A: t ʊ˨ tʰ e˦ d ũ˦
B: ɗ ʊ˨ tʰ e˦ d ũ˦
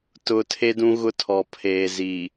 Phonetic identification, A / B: A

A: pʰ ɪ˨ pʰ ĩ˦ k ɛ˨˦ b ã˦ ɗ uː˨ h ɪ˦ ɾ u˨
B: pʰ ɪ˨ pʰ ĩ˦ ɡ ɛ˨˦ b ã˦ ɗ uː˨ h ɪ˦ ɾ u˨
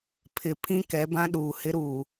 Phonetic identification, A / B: A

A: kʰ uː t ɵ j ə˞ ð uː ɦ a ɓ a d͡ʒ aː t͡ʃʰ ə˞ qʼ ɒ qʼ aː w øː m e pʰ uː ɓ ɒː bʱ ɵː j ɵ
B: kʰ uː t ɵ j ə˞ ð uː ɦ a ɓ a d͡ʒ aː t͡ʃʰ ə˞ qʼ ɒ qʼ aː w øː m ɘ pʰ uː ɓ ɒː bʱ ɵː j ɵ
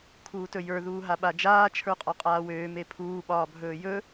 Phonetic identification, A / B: A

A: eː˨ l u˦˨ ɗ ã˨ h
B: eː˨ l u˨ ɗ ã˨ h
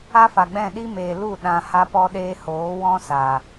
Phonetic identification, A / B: A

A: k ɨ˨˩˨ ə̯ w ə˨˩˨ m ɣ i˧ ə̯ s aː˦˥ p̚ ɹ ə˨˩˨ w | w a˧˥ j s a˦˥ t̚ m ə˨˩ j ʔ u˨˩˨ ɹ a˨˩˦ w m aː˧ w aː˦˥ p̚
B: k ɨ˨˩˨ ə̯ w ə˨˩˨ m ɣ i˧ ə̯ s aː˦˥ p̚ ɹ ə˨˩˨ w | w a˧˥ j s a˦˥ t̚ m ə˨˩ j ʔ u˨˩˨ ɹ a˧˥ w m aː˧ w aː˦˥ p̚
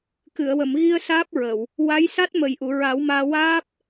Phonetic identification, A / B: A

